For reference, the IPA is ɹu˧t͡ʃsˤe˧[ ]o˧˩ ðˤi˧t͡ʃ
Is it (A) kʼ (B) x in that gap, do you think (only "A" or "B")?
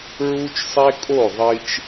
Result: A